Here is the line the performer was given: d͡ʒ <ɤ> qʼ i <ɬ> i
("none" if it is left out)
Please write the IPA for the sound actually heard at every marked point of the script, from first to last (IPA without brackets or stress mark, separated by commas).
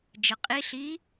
ɤ, ɬ